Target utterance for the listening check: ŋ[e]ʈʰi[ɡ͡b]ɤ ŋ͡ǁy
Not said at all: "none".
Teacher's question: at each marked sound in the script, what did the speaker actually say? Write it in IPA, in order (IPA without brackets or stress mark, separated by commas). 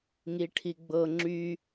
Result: i, ɡ͡b